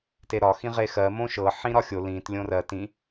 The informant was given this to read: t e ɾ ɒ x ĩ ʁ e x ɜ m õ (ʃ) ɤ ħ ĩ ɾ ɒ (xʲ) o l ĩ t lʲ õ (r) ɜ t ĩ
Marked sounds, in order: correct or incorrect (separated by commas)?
correct, correct, correct